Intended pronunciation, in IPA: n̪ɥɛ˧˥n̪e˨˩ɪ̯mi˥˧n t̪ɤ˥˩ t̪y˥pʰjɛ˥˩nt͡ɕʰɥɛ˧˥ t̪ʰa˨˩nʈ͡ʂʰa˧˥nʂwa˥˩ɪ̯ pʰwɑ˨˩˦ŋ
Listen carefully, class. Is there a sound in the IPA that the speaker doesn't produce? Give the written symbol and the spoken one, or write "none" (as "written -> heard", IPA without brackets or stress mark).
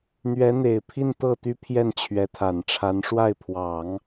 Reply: m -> pʰ